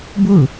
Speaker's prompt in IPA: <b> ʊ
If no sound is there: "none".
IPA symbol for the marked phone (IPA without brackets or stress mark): b